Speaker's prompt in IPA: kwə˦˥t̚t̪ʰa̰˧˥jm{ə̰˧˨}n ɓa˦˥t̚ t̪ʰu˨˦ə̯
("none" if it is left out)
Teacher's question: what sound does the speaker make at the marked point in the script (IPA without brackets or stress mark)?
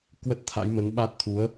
ə˨˦